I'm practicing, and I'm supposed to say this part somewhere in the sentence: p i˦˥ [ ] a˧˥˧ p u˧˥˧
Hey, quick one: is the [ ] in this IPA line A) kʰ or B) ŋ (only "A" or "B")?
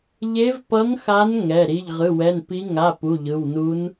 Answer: B